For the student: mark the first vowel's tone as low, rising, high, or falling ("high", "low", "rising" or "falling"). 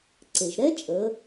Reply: low